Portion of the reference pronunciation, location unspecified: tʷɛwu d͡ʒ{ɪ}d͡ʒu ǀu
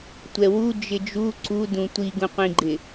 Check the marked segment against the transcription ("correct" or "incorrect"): correct